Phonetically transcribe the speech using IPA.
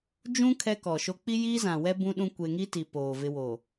d͡ʒ ũ˦ kʰ ɛ˦ k ɔ˨ ʃ o˦ k͡p i˦ j iː˦ z ã˨ w ɛ˦ b ũ˦ ɗ ũ˦ kʷ e˦ ŋ i˦ t i˨ p oː˨ v ɪ˦ w o˨

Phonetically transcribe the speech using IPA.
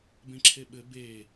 b ẽ ǁʰ e ɓ ɘ b e

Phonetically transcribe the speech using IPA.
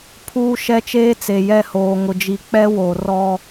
pʰ uː˦ ʃ ɛ˦ t͡ʃ eː˦ t͡s e˨ j ɛ˦˨ h oː˨ ŋ ʊ˨ d͡ʒ i˨ k͡p ɛ˦ w o˨ r ɔ˦

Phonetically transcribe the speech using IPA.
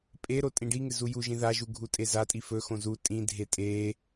pʼ e ɾ o tʼ ĩ ɖ i ŋ ɪ z u j u ʒ ĩ ð a ʒ u ɡʱ u tʼ e z a tʼ i f ɵ x õ z u tʼ ĩ dʱ e tʼ e

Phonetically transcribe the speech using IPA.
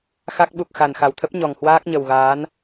x a˦˥ k̚ ɓ u˨˩ k̚ x a˨˩ n x a˨˩ w t̪ʰ ə˦˥ p̚ ɲ ɔ˨˩ ŋ h w aː˦˥ k̚ ɲ ə˨˩ w ɣ aː˨˦ n

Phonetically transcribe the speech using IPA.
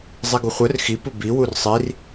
zˤ i ɡ u χʷ œ r x i p u b i w u r sˤ i r

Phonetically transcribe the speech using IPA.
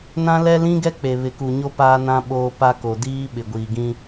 n ã˦ l ɛ˦ l ĩ˦ ɡ ɛ˦ k͡p e˨ β ɪ˨ k u˨ ɲ o˦ p aː˦ n ã˦ ɓ oː˦ p a˦ k o˨ d iː˦ ɓ ɪ˨ ɡʷ iː˨ ɡ ĩ˦

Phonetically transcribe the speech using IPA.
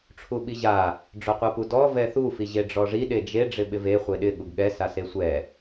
ʈ͡ʂʰ u ɓ i ʑ a | ɖ͡ʐ o qʷ a p u d ɔ v ɛ θ u f i ʑ e ɖ͡ʐ ɔ ʐ i ɗ e d͡ʒ e ɖ͡ʐ ɪ ɓ ɪ v e χʷ e ɗ ɪ ɠ u ɡ ɠ ɛ s a s e sʷ ɛ

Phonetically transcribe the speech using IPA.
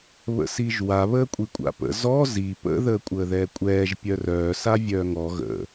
β ə̰ s i ʒ w a β əː kʷʼ i kʷʼ a̰ p ə̰ z ɔ z i p ə̰ ð əː kʷʼ əː ð ɛː kʷʼ ɛː ʒ pʲ œ r œː s a vʲ œː ŋ ɔ ɣ ə̰

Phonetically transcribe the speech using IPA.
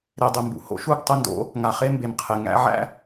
ɾ e˨ dˤ e˨ m b ṵ˨ h o̰˦ ʃ u˦˨ ɡ tˤ ə˦ n d o̰˨˦ | ŋ a˨ χ e˦ m b e˨ m qʰ e˨ ŋ æ̰˦ ʕ æ̰˦

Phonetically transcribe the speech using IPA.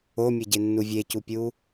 o mʲ e ɟ e nː u vʲ e c u pʲ u

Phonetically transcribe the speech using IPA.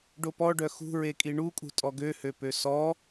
ɖ o p ɔ ɖ œ x ṳ ɹ e kʼ i ɳ u kʼ ṳ tʼ ɔ ɡ ø h ø p ø s ɔ

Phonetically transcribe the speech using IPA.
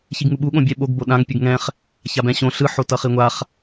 ç i ɡ ŋ u ɓ u ɠ õ bʲ ɛ ɓ o ɡ b o ɗ ã ŋ pʲ u ɡ ŋ ɛ̃ χ | ç a b ɛ̃ ɕ õ ɬ ɯ ħ o t ʌ χ i ŋʷ a χ

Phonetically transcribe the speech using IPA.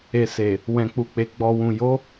e˨ s e˨ | w ɛ̃˨ k͡p u˨ k͡p e˨ ɡ͡b ɔ˨ w ũ˨ j o˨˦

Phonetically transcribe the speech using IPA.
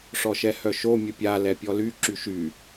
ʂ ɔ ʃ ɛ h œ ʃ o mʲ ə pʲ a l ɛ pʲ ɔ l y ǁ y ʃ y

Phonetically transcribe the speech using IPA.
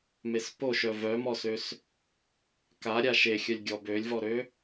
m e s p o ʃ œ v œ m ɔ s ø s | k a ɾʲ a ʃ e xʲ œ lʲ ɡʲ ɔ b ø lʲ v ɔ ɾ ø

